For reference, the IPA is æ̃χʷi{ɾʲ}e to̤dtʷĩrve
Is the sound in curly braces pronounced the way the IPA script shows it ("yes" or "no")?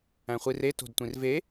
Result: no